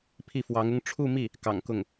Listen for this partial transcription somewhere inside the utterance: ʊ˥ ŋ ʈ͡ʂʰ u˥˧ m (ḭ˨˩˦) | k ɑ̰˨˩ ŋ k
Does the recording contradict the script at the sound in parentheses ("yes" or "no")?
yes